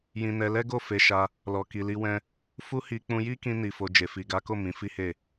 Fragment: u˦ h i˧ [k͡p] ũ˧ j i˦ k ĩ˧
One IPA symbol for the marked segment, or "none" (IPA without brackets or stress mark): k͡p